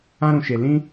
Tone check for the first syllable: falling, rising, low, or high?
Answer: high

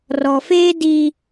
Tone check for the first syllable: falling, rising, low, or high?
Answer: low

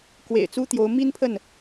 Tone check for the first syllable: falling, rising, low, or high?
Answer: low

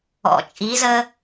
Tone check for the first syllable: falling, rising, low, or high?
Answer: low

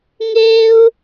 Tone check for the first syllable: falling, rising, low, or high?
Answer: high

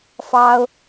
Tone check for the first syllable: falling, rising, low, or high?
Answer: high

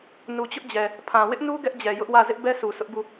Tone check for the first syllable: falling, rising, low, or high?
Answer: low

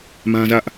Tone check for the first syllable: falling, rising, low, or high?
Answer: high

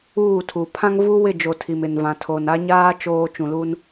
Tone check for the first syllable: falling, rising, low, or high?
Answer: falling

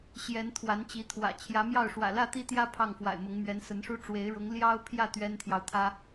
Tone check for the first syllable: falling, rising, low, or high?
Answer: rising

